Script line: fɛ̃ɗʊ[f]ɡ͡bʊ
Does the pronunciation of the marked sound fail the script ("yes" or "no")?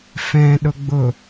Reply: yes